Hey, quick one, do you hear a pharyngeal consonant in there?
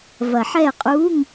yes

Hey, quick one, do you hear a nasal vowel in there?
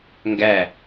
no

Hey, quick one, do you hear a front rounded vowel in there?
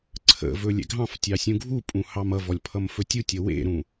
no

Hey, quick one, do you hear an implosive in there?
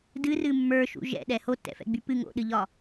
yes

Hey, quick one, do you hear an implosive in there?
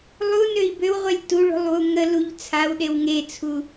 yes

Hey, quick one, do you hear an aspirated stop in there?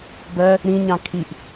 yes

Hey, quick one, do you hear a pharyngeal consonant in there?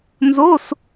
no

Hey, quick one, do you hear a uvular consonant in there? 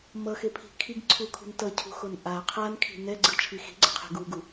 yes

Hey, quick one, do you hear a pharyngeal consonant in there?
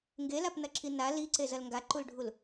no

